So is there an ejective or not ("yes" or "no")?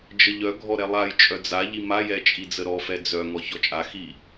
yes